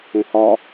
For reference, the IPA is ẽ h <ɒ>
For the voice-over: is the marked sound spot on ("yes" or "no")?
yes